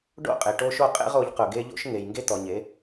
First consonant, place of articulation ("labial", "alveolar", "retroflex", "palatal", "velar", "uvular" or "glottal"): retroflex